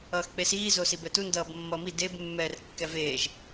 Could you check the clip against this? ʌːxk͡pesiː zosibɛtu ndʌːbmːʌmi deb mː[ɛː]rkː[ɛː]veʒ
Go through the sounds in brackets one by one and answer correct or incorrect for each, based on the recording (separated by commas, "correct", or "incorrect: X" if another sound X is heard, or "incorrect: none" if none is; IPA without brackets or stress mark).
correct, incorrect: ɛ